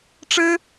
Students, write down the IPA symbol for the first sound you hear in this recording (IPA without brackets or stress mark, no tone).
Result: ʈ͡ʂ